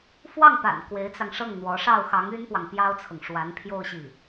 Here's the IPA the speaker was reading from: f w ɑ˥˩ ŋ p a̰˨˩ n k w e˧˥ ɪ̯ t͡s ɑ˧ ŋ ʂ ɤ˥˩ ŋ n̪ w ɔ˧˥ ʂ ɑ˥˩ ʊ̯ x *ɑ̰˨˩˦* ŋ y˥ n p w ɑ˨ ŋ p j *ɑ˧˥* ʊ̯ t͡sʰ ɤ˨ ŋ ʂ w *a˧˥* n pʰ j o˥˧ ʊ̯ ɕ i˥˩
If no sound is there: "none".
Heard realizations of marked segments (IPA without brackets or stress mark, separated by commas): ɑ˧˥, ɑ˥, a˧˥